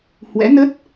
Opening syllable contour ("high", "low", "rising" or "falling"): rising